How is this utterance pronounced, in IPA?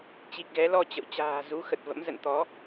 t͡ɕ i˨˩ k̚ ɣ ɛ˨˦ l ɔ˧ t͡ɕ ə̰˧˨ w t͡ɕ a̤ː˨˩ z u˨˦ x ə˨˩ t̚ v ə̰˧˥ m z ə̰˧˨ n t̪ ɔ˨˦

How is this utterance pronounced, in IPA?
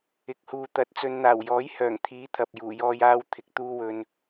ɪ˨˥ k̚ h uː˨ t̪ ɐ˨˥ t̚ t͡s ɵ˨ n n̪ aː˨˩ w j ɔː˨˥ j h œː˨˩ ŋ t̪ʰ iː˨˥ t̪ʰ ɐ˨ p̚ j uː˨˩ j ɔː˧ j aː˧ w t̪ʰ ɪ˨ k̚ t̪ uː˧ w ɵ˨ n

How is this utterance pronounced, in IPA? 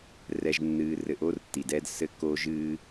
r ɛ˦ ʒ nː ɨː˦ r ɘ˧ ʔ o˦ r tː i˨ d ɛ˦ d s ɘ˦ k oː˦ ʒ ɨː˦

